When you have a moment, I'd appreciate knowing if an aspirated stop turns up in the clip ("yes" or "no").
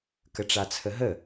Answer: yes